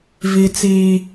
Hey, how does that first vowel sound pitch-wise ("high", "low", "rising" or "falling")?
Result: low